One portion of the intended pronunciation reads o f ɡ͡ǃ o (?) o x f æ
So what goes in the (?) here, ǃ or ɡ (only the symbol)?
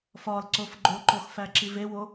ǃ